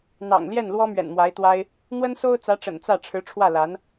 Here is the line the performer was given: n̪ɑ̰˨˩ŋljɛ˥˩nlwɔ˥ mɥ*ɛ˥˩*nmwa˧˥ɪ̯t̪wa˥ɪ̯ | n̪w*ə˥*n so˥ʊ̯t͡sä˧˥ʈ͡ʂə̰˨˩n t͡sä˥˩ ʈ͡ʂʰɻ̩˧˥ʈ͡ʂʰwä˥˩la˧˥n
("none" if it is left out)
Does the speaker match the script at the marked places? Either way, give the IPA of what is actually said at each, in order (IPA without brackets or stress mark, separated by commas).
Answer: ɛ̰˨˩, ə˥